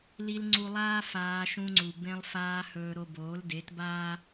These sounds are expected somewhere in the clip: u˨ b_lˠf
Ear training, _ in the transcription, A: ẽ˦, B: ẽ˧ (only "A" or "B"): B